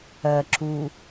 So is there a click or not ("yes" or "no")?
yes